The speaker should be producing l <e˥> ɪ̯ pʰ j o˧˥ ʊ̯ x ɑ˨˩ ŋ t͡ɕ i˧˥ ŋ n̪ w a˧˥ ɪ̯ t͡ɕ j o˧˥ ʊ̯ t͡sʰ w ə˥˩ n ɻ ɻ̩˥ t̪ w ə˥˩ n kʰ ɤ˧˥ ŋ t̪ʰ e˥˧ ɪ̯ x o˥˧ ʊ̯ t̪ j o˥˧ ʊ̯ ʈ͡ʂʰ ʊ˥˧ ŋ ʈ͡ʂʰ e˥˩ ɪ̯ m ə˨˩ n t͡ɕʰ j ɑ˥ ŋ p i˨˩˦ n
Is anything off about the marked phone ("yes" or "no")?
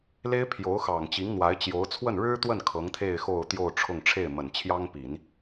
no